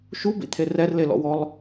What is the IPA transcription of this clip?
ʃ u b ḭ t̪ʰ e r ɛ r l e l ɔ̰ w ɔ lˠ

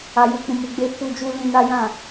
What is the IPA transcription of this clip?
a˨ j u˨ k͡p ũ˨ m u˨ ɡ͡b e˧ f u˧ d͡ʒ u˦ l ĩ˧ n a˦ j ã˦˨

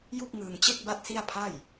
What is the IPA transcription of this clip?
j u˥˩ k̚ ŋ ɯː˧ ŋ t͡ɕ e˥˩ k̚ b a˥˩ t̚ s i˥˩ a̯ pʰ a˥˩ j

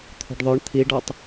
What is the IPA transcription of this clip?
t̪ʰ o̤ ɖ ðˤ œ ɳ t̪ʰ i ɖ ɔ tˤ

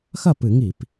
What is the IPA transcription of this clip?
x ɐ˥˩ p ɨ˧˩˧ ŋ i˧˩˧ p

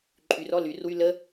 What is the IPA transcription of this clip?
ǃʼ y r ɔ l y r w y l ə

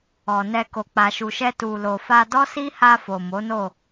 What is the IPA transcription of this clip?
ɔ˨ n ɛ˧ k o˨ k͡p a˨ ʃ u˨ ʃ ɛ˧ t u˨ l o˨ f a˧ d ɔ˦ s i˦ h a˧ f o˨ m o˨˦ n o˦˨

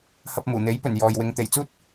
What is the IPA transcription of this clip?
h ɐ˧ p̚ m uː˨˩ n̪ e˨˥ j p ɵ˨˩ n j ɔː˨ j w ɪ˧ ŋ t̪ e˨˩ j t͡s uː˥ t̚

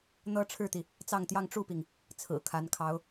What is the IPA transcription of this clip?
n̪ ɤ˥ ʈ͡ʂʰ ɻ̩˥˩ t̪ i˩ | t͡s ɑ˥˧ ŋ t̪ j ɑ˥˧ ŋ ʈ͡ʂ u˥˩ p i˩ ŋ | t͡sʰ ɹ̩˨˩ kʰ a˧˥ n kʰ ɑ˧˥ ʊ̯

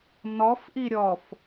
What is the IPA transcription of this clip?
n ɔ f ʔ i ɾʲ ɔ f

